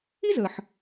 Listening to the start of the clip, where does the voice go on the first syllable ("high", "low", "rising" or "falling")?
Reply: high